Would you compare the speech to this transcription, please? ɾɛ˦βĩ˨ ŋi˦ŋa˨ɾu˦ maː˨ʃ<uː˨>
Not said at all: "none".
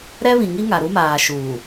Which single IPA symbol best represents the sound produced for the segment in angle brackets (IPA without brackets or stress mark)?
uː˨